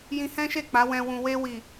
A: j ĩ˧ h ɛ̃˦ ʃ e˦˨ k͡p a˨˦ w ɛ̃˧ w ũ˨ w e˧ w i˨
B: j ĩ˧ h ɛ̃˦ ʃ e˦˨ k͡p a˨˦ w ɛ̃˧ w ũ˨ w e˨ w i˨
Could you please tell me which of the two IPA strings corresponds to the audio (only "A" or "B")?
A